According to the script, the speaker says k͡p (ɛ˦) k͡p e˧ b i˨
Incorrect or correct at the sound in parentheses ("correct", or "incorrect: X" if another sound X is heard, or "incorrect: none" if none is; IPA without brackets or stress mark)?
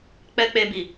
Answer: correct